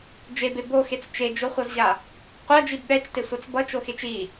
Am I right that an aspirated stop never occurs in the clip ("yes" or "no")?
yes